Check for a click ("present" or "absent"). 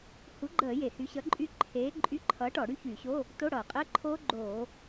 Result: present